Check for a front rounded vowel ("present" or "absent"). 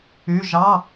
present